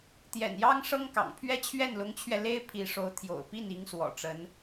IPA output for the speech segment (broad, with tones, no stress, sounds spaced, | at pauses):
t̪ j ɛ̰˨˩ n j ɑ˥ ŋ ʂ ɤ˥ ŋ k ɑ̰˨˩ ŋ pʰ ɥ ɛ˥ t͡ɕʰ ɥ ɛ˥˩ n l ʊ˧˥ ŋ t͡ɕʰ ɥ ɛ˧ l e˥ ɪ̯ pʰ i˧˥ ʂ o˧˥ ʊ̯ t̪ʰ j o̰˨˩ ʊ̯ p i˥˩ n i˧˥ ŋ s w ɔ̰˨˩ ʈ͡ʂ ə˧˥ n